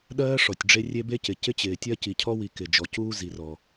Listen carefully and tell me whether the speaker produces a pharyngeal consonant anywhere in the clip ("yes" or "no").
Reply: no